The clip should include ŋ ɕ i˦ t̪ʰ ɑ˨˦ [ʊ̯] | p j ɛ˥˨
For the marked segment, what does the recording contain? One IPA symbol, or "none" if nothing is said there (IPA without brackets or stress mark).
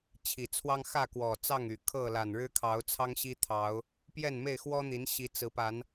ʊ̯